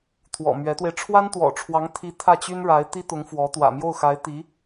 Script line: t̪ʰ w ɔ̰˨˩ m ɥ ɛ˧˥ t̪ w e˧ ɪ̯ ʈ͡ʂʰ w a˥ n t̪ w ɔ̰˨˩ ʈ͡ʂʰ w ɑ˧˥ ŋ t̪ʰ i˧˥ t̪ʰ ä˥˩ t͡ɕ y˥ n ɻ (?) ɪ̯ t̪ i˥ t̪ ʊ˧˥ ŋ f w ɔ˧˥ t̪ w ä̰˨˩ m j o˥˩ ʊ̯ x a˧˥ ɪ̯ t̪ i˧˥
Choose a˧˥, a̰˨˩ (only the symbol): a˧˥